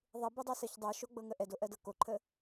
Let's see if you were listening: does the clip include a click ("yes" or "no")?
yes